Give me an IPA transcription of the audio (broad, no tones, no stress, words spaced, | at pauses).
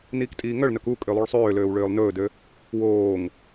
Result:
niːktʼiːŋœɭnœk u kʼølˠuɭsˤøːløːw ɭøːlˠnɵːdø | woːŋ